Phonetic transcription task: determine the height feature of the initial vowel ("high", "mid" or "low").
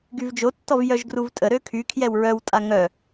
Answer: high